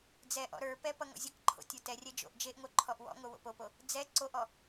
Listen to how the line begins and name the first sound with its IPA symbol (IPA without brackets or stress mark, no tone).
d͡z